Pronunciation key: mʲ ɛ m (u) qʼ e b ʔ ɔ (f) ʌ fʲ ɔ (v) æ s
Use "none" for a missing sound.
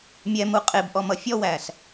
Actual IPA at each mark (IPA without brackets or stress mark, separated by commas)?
u, m, w